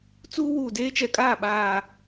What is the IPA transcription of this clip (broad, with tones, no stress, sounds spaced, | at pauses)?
t͡s uː˦ w uː˨ d eː˦ t͡ʃ ɛ˨ kʼ aː˦˨ ɓ aː˨